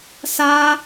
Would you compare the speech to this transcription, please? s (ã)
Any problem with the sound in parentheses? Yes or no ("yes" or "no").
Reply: yes